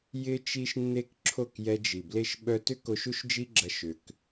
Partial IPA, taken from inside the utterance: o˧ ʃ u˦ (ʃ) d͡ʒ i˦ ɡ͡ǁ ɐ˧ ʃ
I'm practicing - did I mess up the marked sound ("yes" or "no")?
no